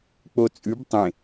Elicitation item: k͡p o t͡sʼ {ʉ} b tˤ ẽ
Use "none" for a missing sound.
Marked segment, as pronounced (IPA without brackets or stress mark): ʉ